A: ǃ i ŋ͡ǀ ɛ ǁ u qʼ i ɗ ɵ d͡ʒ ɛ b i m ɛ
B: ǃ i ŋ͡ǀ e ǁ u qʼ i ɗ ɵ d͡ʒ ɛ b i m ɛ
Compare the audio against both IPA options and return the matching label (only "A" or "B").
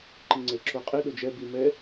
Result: B